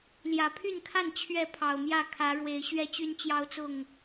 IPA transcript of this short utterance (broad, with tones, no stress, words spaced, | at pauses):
ljä˨˩pʰy˥˨nkʰa˥˨n t͡ɕʰɥɛ˥˨pʰɑ˨˩ʊ̯mjä˥˨ kʰä˨˦ɻwe˨˦ɪ̯ ɕɥɛ˦t͡ɕy˦nt͡ɕjɑ˦ʊ̯t͡sʊ˥˨ŋ